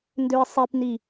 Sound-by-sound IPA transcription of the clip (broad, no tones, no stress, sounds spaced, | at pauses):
n d ø ɪ̯ sˤ i p n i